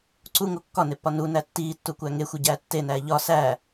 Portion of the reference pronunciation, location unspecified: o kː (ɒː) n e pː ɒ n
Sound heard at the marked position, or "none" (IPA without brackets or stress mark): ɒ